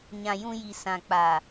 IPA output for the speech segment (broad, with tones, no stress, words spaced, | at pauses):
ɲã˨jũ˧ji˨ sã˨k͡pa˨